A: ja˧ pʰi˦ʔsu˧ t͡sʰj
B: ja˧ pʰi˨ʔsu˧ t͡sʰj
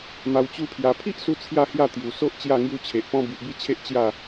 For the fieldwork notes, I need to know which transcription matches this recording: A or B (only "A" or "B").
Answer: A